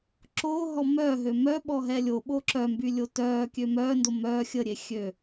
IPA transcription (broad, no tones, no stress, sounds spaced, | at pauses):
ǁ oː ɦ ɔ m œ ɦ ø m œ ɓ ɔ ɦ ɛ lʲ o ɓ o ǁ œ m b y lʲ o t œː kʲ ø m œː n d o m œː xʲ ə ɾʲ e xʲ ø